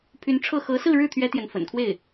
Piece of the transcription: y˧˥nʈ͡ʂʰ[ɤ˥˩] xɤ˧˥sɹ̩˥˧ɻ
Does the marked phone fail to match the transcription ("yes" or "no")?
no